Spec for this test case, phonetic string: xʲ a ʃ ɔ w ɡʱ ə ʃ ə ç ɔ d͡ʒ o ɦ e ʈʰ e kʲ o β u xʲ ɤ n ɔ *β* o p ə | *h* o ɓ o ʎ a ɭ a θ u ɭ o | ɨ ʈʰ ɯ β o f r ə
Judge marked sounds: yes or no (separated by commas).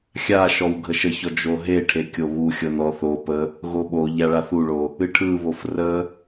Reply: no, no